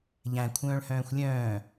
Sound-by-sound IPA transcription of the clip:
ʎæ̃ kʷʰœ̃ːɭhœ̃ːxʷlʲœ̃ː

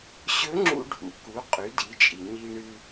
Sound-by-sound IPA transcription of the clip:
ɕɵ˧˥ŋ͡ǁṵ˧ɖʱṵ˩ ku˩˧ qʼʉ˩˧di˩˧t͡ʃʼi˩ ɲi˧ɳɨ˧

